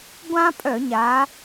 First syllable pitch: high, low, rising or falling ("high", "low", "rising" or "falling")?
high